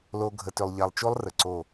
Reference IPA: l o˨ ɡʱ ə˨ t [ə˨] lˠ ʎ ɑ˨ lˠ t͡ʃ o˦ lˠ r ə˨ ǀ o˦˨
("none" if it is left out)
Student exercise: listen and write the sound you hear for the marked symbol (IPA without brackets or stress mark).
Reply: ʏ˨